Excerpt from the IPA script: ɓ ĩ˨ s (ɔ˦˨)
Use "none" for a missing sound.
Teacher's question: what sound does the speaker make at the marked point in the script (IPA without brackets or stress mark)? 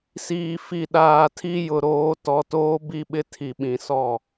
ɔ˦˨